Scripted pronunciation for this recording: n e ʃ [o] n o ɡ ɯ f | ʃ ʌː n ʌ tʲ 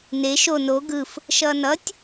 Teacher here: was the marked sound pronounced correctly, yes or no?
yes